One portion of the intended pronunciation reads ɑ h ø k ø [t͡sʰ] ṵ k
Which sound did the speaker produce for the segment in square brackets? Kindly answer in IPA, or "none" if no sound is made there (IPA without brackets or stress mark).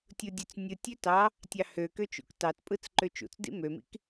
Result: t͡ʃ